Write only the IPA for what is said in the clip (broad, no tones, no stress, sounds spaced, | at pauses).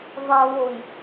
ðˤ ɐ β o j